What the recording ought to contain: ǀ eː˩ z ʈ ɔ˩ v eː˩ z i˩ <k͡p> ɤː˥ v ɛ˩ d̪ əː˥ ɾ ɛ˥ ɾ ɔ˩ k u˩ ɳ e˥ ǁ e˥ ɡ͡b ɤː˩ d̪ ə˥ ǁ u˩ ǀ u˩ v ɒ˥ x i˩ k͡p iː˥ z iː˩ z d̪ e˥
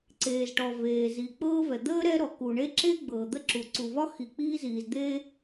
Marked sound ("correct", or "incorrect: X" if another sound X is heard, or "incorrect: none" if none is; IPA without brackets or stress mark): correct